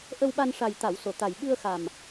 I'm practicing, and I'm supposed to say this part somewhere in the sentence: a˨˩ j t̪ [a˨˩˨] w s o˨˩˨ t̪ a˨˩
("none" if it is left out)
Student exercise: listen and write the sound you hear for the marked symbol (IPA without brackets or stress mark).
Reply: a˨˩˨